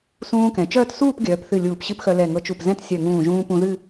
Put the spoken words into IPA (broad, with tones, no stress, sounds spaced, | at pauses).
s ũː˧ k ɛ̃˩˧ t͡ʃ œː˥˧ t s uː˥˧ p ɡʲ œː˩˧ p θ ɨ˧˩ lʲ uː˧˩ p ɕ ɨ˥˧ p x œ˧ l ɛ˧˩ ŋ ɤ˧ t͡ʃ u˧˩ p z ɛ̃˥˧ t sʲ œ˧˩ ŋ ũː˧˩ ʒ ũː˧ p ũ˧ ð ɨ˥˧